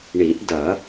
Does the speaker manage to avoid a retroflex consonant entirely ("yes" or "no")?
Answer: no